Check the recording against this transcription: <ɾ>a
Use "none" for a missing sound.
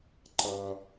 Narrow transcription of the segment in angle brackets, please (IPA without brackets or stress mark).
ǃ